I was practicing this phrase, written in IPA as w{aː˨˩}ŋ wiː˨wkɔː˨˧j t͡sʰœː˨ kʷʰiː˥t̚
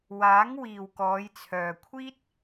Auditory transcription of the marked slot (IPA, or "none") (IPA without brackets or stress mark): aː˨˥